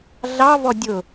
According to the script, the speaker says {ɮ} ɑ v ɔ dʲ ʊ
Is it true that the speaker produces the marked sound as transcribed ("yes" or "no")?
yes